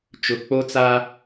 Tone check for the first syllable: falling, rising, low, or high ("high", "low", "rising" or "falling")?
low